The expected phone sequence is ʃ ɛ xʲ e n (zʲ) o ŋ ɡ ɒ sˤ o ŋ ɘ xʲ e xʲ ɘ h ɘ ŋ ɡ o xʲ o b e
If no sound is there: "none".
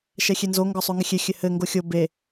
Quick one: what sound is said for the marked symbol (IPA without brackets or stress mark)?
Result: z